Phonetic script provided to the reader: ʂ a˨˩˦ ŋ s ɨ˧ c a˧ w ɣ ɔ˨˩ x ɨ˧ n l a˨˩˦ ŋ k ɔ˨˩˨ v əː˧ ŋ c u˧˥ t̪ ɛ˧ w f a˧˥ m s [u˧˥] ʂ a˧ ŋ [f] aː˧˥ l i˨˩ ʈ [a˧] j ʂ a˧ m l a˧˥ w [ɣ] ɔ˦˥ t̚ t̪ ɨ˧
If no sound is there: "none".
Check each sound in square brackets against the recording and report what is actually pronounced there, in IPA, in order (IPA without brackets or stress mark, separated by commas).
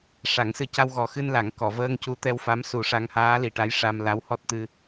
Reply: u˨˩, h, a˧˥, h